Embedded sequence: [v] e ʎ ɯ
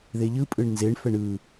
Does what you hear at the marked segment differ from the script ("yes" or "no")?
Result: yes